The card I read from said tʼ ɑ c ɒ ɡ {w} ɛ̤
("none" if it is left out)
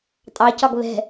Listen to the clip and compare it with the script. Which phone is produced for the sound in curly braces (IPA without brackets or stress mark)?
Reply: β